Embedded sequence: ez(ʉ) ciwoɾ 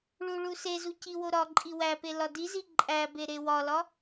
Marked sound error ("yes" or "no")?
yes